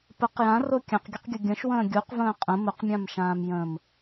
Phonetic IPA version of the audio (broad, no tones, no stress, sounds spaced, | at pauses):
p ə q j ã r o kʲ ã q ɡʲ ə q ɡʲ ʊ ɡʲ ə̃ ʃ w ə̃ː ɡʲ u q v ə̃ː qʼ ə̃ m ʊ q mʲ ã m ʃ ãː m j ə̃ː m